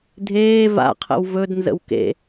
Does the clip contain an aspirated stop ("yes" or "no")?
yes